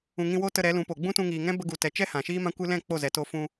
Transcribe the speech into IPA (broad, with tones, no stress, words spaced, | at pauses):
ũ˨ŋĩ˧wo˦tə˧ ɾɛ˨˦lũ˨˦po˨ ɡ͡bũ˦tũ˧ŋiː˨ŋɛ̃˦ bə˧ɡu˨tɛ˨t͡ʃɛ˦ hã˨ʃiː˦mã˦kʷɨ˦ lɛ̃˦˨ k͡po˦˨zɛ˨ to˧fũ˧